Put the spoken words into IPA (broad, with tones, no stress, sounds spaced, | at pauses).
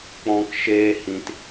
k͡p ɔ̃˧ k ʃ eː˦ h ĩ˧ t